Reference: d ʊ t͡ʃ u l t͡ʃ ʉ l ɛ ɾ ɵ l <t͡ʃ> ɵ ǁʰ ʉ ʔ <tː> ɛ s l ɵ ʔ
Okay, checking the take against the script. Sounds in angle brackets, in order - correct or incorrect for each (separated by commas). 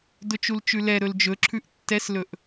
incorrect, correct